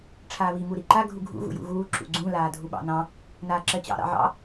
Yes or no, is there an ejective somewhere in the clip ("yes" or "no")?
no